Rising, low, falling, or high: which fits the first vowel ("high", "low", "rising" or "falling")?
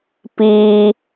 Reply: high